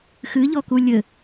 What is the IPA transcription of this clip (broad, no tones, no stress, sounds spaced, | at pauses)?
x ɨ ʎ ɔ k u lʲ ɘ